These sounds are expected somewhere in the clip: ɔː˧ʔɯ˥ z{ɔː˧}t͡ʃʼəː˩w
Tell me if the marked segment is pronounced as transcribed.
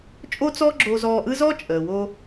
no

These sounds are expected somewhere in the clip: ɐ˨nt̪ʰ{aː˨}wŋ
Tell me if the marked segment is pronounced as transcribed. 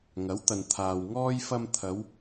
yes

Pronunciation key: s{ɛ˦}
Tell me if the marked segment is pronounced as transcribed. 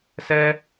yes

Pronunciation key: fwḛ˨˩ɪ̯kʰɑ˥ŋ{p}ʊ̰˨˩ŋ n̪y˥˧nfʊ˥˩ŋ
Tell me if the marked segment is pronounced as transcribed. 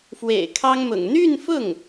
no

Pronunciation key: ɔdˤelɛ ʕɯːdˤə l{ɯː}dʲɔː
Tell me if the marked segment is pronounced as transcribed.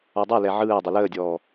no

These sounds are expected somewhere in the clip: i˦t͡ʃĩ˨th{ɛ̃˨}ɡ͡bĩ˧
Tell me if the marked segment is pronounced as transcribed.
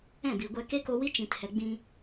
no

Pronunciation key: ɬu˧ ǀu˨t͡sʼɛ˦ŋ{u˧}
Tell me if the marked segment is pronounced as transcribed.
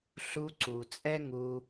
yes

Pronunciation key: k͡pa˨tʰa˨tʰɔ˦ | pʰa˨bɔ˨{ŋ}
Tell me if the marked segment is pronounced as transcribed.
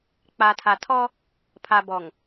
yes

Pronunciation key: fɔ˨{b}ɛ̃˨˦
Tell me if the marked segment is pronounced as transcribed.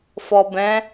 yes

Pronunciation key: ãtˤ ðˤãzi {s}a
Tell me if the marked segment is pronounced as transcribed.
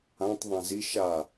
no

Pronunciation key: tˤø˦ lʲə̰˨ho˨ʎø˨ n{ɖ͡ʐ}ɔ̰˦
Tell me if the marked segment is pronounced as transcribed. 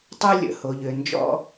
no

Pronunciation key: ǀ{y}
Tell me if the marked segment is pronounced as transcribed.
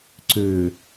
no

